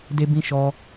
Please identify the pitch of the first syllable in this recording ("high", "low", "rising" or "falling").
high